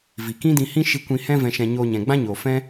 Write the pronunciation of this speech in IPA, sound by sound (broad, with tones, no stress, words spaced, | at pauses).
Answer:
vi˨kĩ˦dĩ˧hĩ˦ ʃi˦ kʷĩ˧hɛ̃˦ vɛ̃˧ʃɛ̃˧ ɲoː˧ɲɛ̃˨ɡ͡bã˦ ɲoː˨fɛ̃˦